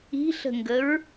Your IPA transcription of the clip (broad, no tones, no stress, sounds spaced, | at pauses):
i̤ ɬ ə̤ ŋ ɡ ə ɹ